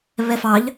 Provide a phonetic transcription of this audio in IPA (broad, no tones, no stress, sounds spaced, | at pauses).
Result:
β ɛ f ɑ ʎ